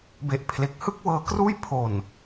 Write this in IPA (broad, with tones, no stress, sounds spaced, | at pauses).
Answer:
b e˨˩ ʔ pʰ l e˨˩ k̚ h ɯ˥˩ k̚ w ɤː˦˥ k r uː˥˩ j pʰ o˨˩ n